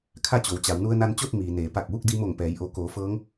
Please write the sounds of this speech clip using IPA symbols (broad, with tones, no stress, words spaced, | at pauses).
kʰa˥˨t͡ɕo˩˧wt͡ɕa˩˧w nu˧ə̯na˧nt͡ɕo˥˨t̚ miː˩neː˩˧ pa˧˩k̚ʋu˥˨k̚ di˧mo˧˩ŋpɛː˩˧jʔo˩˧ koː˩˧fɤː˧˥ŋ